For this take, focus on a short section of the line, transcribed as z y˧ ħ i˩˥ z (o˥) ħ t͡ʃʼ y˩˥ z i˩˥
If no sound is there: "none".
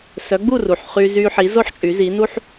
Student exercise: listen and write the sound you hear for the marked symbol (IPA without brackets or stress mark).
o˥